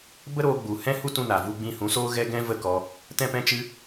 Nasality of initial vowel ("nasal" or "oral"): oral